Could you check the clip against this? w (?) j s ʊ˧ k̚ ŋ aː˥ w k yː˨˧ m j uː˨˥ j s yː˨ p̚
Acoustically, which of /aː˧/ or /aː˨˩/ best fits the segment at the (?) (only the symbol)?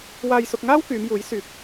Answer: aː˧